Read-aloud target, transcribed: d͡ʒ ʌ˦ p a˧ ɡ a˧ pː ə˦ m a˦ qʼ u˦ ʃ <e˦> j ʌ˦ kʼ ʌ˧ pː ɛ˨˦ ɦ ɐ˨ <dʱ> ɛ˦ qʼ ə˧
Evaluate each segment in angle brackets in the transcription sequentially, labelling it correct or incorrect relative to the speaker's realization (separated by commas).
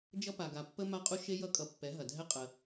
correct, correct